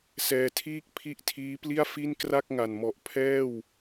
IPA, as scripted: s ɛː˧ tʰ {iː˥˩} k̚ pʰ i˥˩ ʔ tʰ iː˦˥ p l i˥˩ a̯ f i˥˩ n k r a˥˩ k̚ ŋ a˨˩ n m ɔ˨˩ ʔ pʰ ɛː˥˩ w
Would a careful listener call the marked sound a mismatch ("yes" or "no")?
no